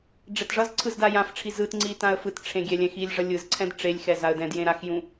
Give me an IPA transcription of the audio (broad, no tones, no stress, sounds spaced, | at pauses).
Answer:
ɖ͡ʐ ɛ t ʐ ʌ z ǀʰ ɯ z d a j ã f ʈ͡ʂʰ i z ɯ t ŋ͡ǀ i t ã ə̯ f ɯ t ʈ͡ʂʰ ẽ ɡʲ ɛ lʲ ɛ̃ x i lʲ ʐ ʌ lʲ ɯ z ǀʰ ɛ̃ d ʈ͡ʂ e lʲ x ɛ z a ə̯ d ɛ̃ d j ẽ ɾ a x j ũ